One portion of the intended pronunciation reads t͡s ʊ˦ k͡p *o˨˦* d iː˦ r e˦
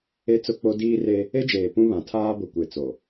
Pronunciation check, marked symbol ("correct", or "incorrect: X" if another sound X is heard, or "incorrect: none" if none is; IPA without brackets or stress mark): incorrect: o˦